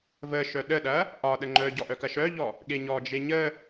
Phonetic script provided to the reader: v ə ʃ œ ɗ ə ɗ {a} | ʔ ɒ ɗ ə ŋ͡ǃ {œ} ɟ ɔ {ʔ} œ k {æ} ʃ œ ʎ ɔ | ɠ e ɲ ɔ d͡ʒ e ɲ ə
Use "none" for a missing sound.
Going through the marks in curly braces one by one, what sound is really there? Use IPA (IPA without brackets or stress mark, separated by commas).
ɐ, œ, ʔ, ɐ